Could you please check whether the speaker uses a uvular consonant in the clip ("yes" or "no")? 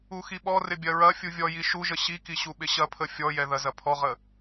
yes